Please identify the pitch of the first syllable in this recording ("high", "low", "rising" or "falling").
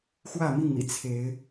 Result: falling